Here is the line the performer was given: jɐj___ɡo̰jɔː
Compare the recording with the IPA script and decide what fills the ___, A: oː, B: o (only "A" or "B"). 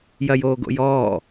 A